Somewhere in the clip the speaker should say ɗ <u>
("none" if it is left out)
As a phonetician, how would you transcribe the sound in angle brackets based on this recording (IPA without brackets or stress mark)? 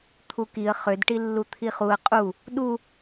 u